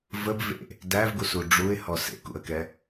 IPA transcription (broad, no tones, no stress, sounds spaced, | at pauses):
v ə b v ḛ | d æ v ɡ u s u ɖ͡ʐ u ɪ̯ h ɔ s ḛ k ṵ ə̯ k ɛ